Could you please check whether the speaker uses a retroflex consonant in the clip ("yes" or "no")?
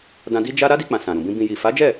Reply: no